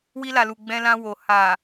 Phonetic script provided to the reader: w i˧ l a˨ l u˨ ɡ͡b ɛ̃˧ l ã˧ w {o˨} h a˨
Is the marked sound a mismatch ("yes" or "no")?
no